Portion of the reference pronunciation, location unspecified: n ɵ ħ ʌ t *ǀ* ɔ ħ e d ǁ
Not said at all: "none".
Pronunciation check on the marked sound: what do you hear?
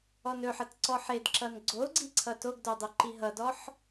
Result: ǀ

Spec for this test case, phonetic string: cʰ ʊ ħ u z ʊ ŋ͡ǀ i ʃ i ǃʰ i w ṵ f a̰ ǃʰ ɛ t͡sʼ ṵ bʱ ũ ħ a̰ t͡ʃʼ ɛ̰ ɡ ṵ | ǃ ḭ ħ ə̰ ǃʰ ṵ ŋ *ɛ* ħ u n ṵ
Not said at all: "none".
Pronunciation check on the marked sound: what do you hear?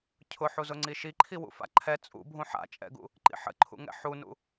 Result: ɛ̰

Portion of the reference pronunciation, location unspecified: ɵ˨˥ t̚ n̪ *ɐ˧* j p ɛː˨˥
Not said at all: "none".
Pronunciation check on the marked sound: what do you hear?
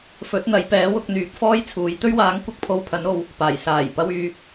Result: ɐ˨˥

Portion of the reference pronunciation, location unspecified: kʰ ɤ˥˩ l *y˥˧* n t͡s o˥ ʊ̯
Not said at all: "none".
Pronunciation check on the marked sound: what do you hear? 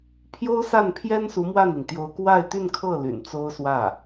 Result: y̰˨˩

